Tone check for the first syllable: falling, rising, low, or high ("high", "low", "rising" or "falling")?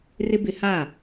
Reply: high